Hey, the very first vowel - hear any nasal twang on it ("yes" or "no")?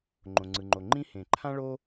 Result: yes